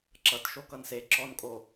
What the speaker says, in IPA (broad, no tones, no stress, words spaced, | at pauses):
ǁʌt ʃokʌnse ǁɔnkʼo